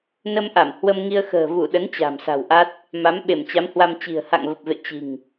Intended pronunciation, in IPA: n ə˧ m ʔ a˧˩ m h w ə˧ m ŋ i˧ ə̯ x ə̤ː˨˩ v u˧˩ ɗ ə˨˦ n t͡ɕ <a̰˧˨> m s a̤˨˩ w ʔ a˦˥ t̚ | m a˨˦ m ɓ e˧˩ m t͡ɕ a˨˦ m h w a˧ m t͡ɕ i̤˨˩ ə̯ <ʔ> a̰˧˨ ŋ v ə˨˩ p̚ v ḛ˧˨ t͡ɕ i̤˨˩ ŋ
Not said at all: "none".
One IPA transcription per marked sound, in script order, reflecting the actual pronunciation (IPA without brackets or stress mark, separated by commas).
a̤˨˩, h